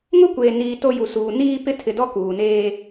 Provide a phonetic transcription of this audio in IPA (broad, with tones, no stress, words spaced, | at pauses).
ŋʊ˦kʷeː˨niː˨ to˦ju˨suː˨ niː˦ pɪ˦tʰɪ˨dɔ˦ kuː˨neː˦